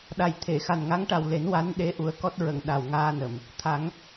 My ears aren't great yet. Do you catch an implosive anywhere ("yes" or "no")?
yes